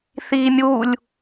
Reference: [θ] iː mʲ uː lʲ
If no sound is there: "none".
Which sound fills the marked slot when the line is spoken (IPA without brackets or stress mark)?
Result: θ